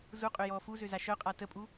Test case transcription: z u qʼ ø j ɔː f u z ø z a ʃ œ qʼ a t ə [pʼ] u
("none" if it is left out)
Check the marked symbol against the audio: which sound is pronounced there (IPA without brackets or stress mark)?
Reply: pʼ